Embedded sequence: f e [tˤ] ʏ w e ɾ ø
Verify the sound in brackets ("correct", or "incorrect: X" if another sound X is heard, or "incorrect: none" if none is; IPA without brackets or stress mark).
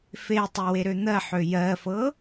correct